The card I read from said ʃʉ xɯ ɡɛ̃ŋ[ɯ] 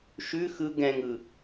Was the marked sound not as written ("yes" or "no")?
no